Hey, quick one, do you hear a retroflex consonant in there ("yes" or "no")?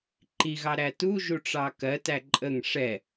yes